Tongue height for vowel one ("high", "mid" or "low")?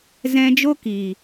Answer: mid